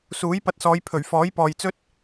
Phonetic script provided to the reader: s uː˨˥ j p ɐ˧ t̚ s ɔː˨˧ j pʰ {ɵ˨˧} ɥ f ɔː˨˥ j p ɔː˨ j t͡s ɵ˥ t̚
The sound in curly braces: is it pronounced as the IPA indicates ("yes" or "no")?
no